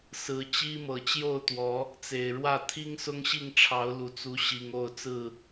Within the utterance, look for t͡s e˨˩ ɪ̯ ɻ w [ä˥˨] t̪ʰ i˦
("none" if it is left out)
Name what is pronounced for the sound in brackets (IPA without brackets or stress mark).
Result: ä˥˨